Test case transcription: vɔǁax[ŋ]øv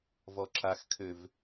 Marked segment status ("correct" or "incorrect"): incorrect